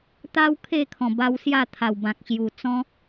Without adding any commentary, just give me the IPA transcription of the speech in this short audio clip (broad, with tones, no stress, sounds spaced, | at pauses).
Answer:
t̪ a˦ w kʰ e˥˧ kʰ ɔ̃˨˩ b a˧ w s j a˥˧ t̪ʰ a˨˩ w b ã˨ k̚ ɕ j u˨˩ t͡s ɔ̃˦